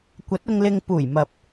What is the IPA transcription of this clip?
kʷ ɐ˨˥ t̚ ʊ˧ ŋ l ɪ˧ ŋ p uː˨˩ j m ɐ˨ p̚

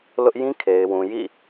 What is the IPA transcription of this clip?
l ʊ˦ ʔ j ĩ˦ kʰ e˨ ɪ̯ w ũ˨ j ḭ˦˨

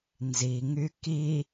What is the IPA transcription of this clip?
n z i ŋ y k i

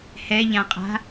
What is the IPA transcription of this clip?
h ɛ ʎ ã qʼ a̤

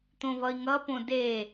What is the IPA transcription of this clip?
t̪ õ v ʌ i̯ ŋ ʌ p õ d e

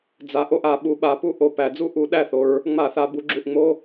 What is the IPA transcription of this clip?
d͡z a˩˧ ʔ o˥˩ ʔ a˧˩˧ ɓ u˩˧ ɓ a˩˧ p u˦ ʔ o˨˩ p æ˧˩˧ d͡z u˥˩ ʔ u˧˩˧ ɗ æ˥˩ θ o˩˧ ɹ | ŋ͡m a˧˩˧ θ a˩˧ b u˩˧ ɡ͡ǁ u˨˩ ʔ ŋ͡m o˦

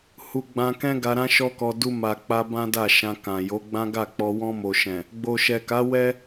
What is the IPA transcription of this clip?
h u˧ ɡ͡b ã˧ k ɛ̃˦ ɡ a˧ ɾ ã˦ ʃ ɔ˦ k ɔ˧ d u˧ m a˨ k͡p a˧ b ã˦ d a˦˨ ʃ ã˧ k ã˨ j o˨˦ ɡ͡b ã˦ ɡ a˦˨ k͡p ɔ˧ w ɔ̃˧ m o˨ ʃ ɛ̃˨ | ɡ͡b o˨ ʃ ɛ˨ k a˨˦ w ɛ˦

